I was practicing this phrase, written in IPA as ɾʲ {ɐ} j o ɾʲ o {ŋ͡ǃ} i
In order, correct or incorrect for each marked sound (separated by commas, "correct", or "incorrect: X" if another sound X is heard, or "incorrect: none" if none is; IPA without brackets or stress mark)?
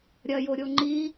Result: correct, correct